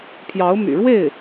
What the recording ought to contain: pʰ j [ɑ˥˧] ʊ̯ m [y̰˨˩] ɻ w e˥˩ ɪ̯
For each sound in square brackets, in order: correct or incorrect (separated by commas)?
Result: incorrect, correct